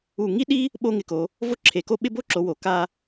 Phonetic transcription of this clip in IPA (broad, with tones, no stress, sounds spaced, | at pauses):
u˧˩ ŋ i˥ ɗ i˥ | ɓ o˥ ŋ ɪ˧ k o˩˧ | v o˥ ǁʰ e˩˧ k o˥˧ ɓ ɪ˥˧ b o˥ ǁ o˩˧ w o˩˧ k a˧